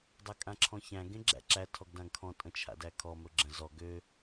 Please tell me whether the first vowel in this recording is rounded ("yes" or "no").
no